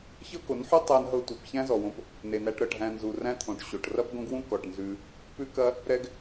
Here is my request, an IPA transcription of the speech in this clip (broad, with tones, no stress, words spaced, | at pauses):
çɤ˦ko˨˦nħʉ˦ tˤæ˦nɦɤ˦tʷi˨p çæ̃˦zɔ˨wõ˧p | ne˨næ˧ʈ ɾɤ˨ʈɦæ̃˧nzu˨ ræ̃˦t̪ʰõ˨ʈɕo˨ʈ rɐ˦pɡõ˦ɡwũ˦ kɔ˨ʈnzʉ˧ | pʉ˦kɐ˦ | ɾɛ˦ɡ